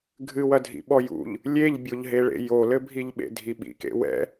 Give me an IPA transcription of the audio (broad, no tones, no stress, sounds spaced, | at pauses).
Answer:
ɡʱ ɨ w ɐ dʱ ḭ ɓ ɔ j ṵ ʎ | lʲ e ʎ bʲ o ʎ ɦ e ɭ ḛ j o l ɘ bʱ i ʎ ɓ ḛ dʱ i ɓ ḭ k ḛ w ɛ̰